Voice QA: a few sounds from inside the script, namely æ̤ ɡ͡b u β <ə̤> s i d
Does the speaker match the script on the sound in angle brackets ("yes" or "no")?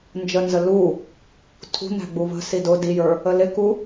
yes